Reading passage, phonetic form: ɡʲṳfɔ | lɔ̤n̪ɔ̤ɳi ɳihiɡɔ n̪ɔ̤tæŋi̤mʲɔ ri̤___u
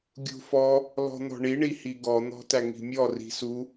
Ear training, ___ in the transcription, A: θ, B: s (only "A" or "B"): B